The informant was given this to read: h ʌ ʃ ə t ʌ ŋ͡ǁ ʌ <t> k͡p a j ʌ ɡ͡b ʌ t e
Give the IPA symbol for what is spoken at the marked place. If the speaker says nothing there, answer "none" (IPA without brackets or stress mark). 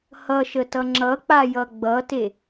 none